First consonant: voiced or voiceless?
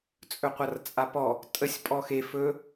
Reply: voiceless